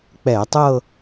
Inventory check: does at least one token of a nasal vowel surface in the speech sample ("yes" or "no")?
no